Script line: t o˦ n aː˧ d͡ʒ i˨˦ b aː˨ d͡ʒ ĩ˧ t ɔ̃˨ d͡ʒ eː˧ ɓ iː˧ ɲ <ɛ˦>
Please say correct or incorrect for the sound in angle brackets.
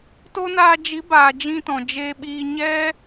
correct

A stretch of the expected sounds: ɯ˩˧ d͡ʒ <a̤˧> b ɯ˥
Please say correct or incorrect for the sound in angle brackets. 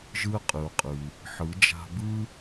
correct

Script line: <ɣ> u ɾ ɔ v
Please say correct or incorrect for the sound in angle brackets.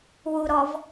incorrect: w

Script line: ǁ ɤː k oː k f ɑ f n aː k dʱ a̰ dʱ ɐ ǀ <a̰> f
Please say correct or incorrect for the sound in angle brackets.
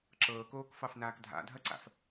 correct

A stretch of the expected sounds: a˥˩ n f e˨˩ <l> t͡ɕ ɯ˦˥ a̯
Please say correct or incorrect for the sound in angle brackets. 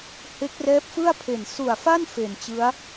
incorrect: n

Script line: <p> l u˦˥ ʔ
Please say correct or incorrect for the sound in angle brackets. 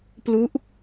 correct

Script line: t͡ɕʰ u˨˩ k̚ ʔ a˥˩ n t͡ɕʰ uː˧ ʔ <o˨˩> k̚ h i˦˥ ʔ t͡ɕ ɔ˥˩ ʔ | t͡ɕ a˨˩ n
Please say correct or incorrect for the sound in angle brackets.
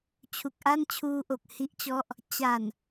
correct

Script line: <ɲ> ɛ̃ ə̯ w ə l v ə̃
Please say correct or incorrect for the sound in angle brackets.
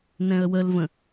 incorrect: n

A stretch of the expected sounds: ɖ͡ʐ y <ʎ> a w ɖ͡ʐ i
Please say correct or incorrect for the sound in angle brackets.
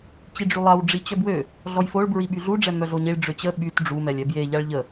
incorrect: lˠ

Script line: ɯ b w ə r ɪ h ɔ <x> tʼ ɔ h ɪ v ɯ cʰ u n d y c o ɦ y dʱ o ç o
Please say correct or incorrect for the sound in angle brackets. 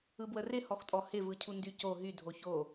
correct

